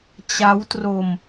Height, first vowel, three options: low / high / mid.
low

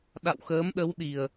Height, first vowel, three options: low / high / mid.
low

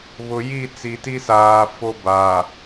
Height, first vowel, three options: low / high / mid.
high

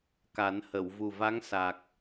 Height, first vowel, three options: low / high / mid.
low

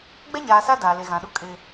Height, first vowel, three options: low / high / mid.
mid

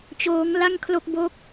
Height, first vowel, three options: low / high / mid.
mid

